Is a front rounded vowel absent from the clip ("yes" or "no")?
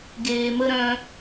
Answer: no